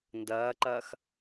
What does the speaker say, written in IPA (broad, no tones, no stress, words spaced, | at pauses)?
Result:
ndɐːǃɐːx